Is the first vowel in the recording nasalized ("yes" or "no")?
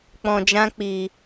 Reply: yes